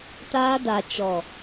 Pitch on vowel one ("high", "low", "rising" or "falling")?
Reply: high